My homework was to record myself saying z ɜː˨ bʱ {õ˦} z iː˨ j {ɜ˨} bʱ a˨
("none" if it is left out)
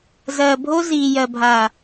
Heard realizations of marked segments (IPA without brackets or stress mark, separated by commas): o˦, ɜ˨